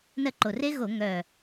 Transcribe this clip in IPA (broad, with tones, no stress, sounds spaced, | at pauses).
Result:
n ɜ˦˨ ǃ o˨˩ r e˦˥ ɣ o˧˩˧ ŋ œː˨˩